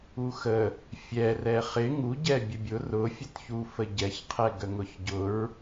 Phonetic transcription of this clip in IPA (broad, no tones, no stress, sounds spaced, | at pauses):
u x ə | fʲ ɛ r ɛ χ ɪ ŋ u ɟ ɛ bʲ ə bʲ ʊ r ʊ fʲ ə t ç u f ə ɟ ɛ ç qʰ ɛ ɡ ə ŋ ʊ ç ɟ ʊ ɹ